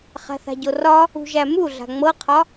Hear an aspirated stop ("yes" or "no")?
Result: yes